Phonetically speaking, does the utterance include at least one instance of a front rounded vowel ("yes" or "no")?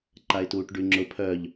yes